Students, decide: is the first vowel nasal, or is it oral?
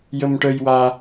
oral